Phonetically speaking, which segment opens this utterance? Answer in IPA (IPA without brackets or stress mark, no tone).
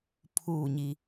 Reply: pʰ